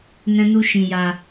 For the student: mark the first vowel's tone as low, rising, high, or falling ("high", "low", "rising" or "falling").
high